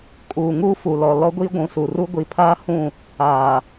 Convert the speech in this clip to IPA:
kʼ uː˨ ŋ uː˦ f u˨ l ɔ˨ l ɔ˦ ɡʷ i˦ ɡʷ ũ˨ s u˨ r u˦ ɡʷ i˨ pʰ aː˦ h ũ˦˨ | aː˨

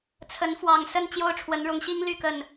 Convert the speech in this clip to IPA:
t͡sʰ ə˨˦ n f w ɑ˨˩ ŋ s ə˥˨ n t͡ɕ j o˥˨ ʊ̯ ʈ͡ʂʰ w ə˨˦ n ɻ ʊ˨˦ ŋ ɕ i˦ ŋ l y˥˨ k ə˥˨ n

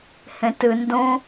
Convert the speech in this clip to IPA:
h ẽ t ɨ n d õ

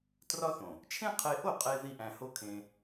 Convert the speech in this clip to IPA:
t r ɒ˦ θ õ˨ | t͡ʃʰ ẽ˦ qʰ e˧ ʔ o˦˨ qʼ e˧ ð i˦ ʔ æ̃˧ h o˦ kʰ ẽ˧

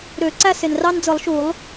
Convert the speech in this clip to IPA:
ɾ ø˨˩˦ ǀ æ˥ s e˩ n r ɑ˥ n d͡z ɯ˨˩˦ lˠ ʃ u˨˩˦ lˠ

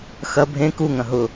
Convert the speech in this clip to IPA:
x ɐ bʱ ẽ k u ŋ ɐ̃ ɦ ʊ

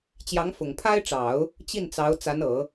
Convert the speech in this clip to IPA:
t͡ɕ j ɑ˧˥ ŋ f ʊ˨˩ ŋ pʰ a˥ ɪ̯ ʈ͡ʂ ɑ˨˩˦ ʊ̯ | t͡ɕ i˥˩ n t͡s ɑ˧˥ ʊ̯ t͡s a˧˥ n ɤ˨˩˦

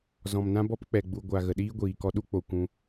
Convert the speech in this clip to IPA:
z ɔ̃˨ m n ã˦ b ɔ˦ p k͡p ɛ˨ ɡ͡b u˨ ɡʷ a˨ ɣ ə˨ ɗ iː˦ ɡʷ iː˨ k ɔ˧ ɗ u˦ k͡p o˨ kʷ ũ˧

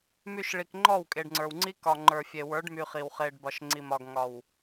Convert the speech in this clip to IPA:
m y˨ ʃ ɭ i˨ k ŋ͡ǃ ɔ˦˨ w kʼ e˨ ɖ ŋ͡ǀ ə˞˨ w ŋ͡ǀ i˦ k ɒ˨ ŋ͡ǃ ə˞˨ fʲ e˨ w ə˞˨˦ ɖ m y˨ χ i˨ w χ e˨ ɖ b ɒ˨ ʃ ŋ͡ǀ i˨ m ɒ˨ ɡ ŋ ɒ˨ w

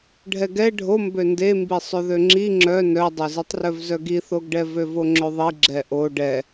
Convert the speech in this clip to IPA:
ɖʱ ɛ ɡ ɛ ɖʱ o m b ø n d e m b i sˤ ø ð ø ŋ͡ǁ i ŋ͡ǁ œ n œ dˤ ø z i tˤ r œ v z œ ɡ i θ o ɡ ɖ ɛ v ø v o ŋ͡ǁ ø ðˤ i ɡ͡ǁ ɛ ʔ o ɖ ɛ

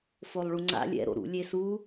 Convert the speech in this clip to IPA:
f o lˠ ɭ u ŋ͡ǀ a̰ lʲ ɛ̰ ɾ o̰ ɾ ṵ lʲ e s u

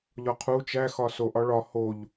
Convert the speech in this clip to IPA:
ʎ ɒ qʰ u t͡ʃ æ x ɒ s o ʔ ɒ ɭ ɒ h o ʎ

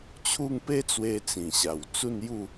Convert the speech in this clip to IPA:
t͡ɕʰ u˥˧ ŋ p e˦ t͡s w e˧ t͡s ĩ˨˩ ɕ a˨˩ w t͡s u˥˧ n j u˥˧

